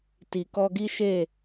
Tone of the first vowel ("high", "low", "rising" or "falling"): low